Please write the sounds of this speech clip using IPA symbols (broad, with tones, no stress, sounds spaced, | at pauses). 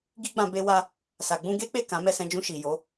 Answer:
ɡ i˦ ɡ͡b ã˧ b e˧ w a˧ | s a˨ ɡ͡b ũ˧ ɡ e˦ k͡p e˦˨ k ã˨˦ m ɛ˦˨ s ɛ̃˧ d͡ʒ ũ˧ ʃ i˨ j o˨˦